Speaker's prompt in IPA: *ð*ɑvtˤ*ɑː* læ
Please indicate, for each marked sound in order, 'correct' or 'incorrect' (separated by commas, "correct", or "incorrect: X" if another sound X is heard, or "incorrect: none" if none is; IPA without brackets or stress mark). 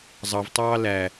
incorrect: zˤ, correct